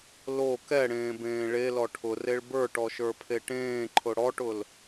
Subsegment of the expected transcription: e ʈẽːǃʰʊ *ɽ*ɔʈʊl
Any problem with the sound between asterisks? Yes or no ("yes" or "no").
no